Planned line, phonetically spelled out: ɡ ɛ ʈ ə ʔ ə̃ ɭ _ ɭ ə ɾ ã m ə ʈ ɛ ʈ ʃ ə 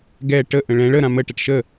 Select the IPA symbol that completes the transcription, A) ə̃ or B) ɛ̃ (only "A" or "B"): B